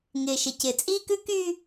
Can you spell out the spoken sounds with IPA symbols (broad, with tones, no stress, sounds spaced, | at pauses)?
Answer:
ŋ ɪː˨ ʃ ɪ˨ c ɪ˨ t͡sʼ iː˦ k ʉ˦ k yː˦